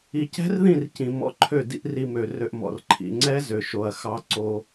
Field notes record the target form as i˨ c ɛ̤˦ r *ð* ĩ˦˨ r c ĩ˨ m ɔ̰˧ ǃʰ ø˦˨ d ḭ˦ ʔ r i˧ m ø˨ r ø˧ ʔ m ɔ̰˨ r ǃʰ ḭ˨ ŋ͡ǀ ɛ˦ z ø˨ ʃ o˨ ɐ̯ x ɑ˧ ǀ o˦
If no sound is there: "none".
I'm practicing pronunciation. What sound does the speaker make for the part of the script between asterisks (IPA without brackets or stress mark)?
ð